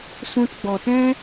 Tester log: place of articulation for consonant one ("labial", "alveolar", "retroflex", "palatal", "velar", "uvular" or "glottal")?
alveolar